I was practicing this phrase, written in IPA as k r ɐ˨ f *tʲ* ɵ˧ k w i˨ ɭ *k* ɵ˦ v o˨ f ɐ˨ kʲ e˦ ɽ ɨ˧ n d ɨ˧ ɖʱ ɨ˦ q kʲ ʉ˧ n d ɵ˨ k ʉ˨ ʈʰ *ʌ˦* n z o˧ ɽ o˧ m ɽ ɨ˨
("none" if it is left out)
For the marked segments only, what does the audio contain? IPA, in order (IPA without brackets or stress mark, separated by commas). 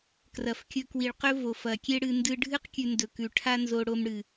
kʲ, q, a˦